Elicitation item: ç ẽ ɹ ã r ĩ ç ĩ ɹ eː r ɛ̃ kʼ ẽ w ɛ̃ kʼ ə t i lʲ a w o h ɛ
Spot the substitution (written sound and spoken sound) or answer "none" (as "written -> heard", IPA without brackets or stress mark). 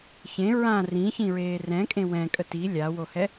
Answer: none